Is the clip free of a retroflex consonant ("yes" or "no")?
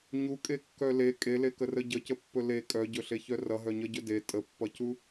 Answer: yes